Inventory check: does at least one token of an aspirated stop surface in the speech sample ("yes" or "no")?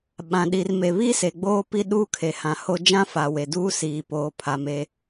yes